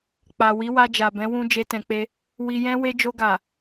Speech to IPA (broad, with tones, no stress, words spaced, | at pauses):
k͡pa˨ wi˨˦wa˧d͡ʒa˨bɛ̃˨˦ wũ˦d͡ʒe˦tɛ̃˧k͡pe˦ | wi˧jɛ̃˦we˦ d͡ʒo˧ɡa˨